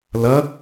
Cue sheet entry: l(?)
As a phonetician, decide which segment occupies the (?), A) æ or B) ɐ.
B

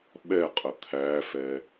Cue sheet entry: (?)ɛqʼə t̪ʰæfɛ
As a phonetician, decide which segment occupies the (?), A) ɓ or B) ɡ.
A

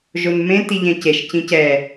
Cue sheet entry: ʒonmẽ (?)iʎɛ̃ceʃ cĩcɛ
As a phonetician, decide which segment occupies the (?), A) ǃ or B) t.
B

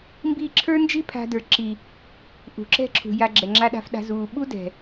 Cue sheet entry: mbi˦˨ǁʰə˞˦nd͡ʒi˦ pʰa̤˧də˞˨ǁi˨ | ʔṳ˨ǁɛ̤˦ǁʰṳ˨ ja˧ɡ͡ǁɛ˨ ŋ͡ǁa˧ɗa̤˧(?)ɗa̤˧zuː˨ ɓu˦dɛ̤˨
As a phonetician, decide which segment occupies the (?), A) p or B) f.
B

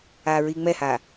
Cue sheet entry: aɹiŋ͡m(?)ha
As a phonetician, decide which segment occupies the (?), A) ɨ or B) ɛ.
B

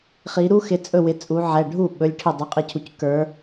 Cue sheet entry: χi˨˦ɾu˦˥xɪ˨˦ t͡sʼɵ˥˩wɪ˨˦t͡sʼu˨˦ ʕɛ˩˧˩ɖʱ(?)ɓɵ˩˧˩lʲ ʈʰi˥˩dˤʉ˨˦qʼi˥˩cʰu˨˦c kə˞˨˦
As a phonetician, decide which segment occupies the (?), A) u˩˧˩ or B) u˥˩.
B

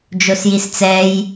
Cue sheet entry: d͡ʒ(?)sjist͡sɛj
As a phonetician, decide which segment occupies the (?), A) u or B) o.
B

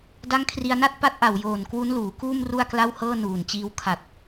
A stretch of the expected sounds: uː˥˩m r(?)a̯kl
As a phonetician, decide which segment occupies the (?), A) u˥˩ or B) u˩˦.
A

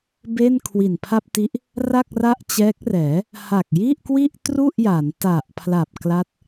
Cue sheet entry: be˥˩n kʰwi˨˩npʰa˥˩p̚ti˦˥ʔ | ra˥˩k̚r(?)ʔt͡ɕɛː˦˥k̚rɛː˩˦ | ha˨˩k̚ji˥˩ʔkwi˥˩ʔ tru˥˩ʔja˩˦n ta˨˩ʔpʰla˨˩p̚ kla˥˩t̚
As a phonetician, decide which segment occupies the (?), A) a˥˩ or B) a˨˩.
A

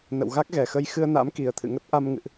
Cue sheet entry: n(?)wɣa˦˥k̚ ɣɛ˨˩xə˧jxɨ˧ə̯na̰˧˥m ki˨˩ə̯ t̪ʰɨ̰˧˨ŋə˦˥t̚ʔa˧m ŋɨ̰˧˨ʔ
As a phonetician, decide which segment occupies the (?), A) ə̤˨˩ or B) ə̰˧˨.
B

